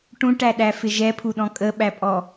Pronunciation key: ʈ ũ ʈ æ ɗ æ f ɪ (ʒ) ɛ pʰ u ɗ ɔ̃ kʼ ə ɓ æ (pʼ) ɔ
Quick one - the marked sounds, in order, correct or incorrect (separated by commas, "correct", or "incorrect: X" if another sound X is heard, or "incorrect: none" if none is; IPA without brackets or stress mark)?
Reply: correct, correct